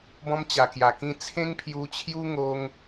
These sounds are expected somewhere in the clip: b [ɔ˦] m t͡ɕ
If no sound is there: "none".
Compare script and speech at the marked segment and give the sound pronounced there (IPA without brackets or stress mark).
ɔ̃˦